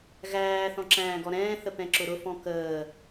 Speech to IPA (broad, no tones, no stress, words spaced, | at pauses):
ɣæː θɔ̃ǁæ̃ːɡɔɾɛ̃ː θəpɛ̃ǁʊɾʊ fɔ̃kəː